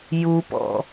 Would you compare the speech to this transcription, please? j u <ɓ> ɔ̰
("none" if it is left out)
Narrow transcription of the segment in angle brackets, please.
p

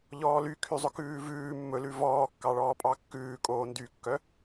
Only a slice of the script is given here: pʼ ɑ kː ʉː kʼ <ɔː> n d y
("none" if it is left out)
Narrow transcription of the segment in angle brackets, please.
oː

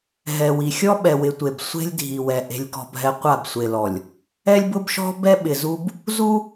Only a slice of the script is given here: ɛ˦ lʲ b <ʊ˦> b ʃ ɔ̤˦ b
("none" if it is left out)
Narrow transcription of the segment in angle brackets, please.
ʊ˦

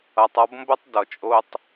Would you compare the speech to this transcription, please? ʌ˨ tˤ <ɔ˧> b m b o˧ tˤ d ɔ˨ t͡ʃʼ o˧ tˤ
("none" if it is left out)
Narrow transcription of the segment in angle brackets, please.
ɔ˧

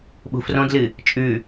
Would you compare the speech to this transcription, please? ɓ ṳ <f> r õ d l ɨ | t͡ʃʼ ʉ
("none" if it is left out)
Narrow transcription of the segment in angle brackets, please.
f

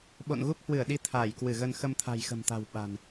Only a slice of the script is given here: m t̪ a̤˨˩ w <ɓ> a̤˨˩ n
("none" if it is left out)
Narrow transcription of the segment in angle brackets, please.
ɓ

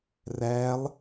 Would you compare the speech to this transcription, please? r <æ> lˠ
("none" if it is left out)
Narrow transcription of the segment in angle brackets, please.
æ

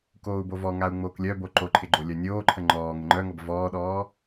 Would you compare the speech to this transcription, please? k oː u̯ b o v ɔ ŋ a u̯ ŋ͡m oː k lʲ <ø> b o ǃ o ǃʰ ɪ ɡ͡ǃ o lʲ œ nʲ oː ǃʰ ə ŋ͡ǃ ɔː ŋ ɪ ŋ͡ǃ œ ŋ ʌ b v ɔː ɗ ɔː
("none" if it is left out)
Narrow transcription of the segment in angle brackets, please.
œ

